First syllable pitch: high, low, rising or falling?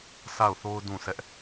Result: falling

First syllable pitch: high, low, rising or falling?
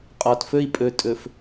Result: low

